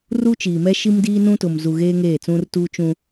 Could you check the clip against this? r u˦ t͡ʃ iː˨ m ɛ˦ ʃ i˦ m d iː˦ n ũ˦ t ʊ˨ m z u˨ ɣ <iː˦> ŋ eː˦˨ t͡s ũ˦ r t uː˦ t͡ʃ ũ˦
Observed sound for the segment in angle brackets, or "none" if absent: eː˦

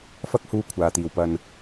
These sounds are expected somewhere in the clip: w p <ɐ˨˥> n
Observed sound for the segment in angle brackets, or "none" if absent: ɐ˧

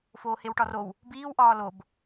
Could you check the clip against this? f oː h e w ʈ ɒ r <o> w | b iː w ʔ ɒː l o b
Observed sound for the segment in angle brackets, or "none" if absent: o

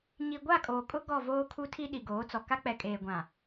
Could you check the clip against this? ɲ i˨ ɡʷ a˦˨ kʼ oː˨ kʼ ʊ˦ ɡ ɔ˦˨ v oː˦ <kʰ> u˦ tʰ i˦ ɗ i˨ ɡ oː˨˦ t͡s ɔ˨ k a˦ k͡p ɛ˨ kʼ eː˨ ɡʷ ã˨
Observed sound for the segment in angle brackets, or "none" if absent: kʰ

